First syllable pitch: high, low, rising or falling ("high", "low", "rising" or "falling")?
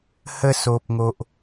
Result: falling